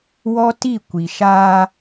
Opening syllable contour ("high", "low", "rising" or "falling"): high